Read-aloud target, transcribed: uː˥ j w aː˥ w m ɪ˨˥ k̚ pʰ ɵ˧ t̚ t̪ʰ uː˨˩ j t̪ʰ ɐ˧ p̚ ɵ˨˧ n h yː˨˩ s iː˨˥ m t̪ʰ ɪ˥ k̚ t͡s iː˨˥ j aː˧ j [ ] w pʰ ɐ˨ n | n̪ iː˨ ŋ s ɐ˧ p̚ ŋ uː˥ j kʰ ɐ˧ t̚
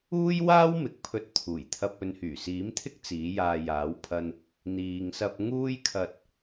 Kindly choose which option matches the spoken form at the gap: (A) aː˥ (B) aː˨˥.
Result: B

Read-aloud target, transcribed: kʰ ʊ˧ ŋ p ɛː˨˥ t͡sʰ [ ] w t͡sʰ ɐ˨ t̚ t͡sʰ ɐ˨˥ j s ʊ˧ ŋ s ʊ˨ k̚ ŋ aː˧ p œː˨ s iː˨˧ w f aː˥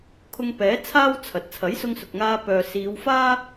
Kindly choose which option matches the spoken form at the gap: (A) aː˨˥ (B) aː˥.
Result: B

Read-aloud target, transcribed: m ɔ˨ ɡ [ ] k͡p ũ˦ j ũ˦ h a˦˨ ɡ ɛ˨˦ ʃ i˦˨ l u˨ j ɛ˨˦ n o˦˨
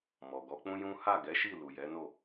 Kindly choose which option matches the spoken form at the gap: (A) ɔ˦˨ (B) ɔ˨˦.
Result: B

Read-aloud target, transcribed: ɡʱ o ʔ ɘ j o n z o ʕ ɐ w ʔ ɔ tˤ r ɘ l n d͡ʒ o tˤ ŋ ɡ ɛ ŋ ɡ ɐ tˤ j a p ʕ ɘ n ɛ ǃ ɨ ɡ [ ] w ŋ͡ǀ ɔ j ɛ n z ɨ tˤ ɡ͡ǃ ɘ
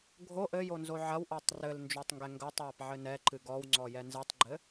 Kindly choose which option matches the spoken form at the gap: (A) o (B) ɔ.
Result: B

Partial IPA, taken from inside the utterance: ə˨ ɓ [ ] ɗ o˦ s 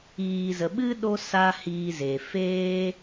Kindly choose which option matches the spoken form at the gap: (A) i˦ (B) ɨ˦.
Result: B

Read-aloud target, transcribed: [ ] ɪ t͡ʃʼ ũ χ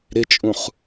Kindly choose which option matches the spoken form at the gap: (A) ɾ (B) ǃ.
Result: A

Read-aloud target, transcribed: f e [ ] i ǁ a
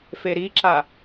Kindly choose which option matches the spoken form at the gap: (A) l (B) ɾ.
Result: B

